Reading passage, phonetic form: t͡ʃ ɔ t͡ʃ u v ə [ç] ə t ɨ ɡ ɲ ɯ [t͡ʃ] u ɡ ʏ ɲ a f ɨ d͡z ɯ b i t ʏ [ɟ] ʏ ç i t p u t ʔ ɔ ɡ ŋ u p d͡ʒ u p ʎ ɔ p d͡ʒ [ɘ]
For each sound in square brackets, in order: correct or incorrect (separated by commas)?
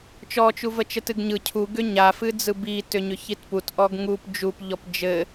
incorrect, incorrect, incorrect, correct